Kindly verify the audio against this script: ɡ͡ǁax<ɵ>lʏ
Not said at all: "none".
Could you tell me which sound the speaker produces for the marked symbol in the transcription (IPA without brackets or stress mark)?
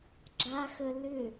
ə